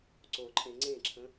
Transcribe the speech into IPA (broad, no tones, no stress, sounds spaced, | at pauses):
ǀ o ǃʼ ẽ ŋ͡ǀ ẽ ǁʰ ə̃